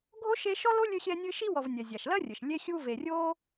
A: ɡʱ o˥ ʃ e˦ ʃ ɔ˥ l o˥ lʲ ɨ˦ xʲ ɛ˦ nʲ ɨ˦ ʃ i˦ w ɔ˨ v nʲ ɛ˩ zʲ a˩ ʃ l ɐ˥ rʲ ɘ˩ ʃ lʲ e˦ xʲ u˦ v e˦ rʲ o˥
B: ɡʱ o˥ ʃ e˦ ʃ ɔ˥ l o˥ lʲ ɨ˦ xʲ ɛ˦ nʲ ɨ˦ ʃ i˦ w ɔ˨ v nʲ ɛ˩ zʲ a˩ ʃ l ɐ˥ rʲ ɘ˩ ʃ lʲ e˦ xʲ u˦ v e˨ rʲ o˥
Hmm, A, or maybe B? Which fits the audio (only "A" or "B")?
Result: B